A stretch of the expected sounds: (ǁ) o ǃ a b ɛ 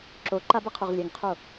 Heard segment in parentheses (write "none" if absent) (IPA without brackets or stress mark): ǁ